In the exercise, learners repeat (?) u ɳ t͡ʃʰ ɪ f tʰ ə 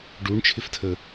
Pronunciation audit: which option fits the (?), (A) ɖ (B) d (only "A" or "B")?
A